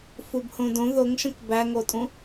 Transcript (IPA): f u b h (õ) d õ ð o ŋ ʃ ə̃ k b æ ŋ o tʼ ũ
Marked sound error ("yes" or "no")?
no